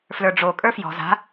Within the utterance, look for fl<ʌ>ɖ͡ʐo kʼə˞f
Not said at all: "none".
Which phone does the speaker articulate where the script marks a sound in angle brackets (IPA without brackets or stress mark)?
ə˞